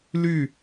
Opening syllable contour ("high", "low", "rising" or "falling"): falling